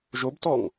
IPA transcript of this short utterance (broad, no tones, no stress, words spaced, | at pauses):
ʒobtɔŋ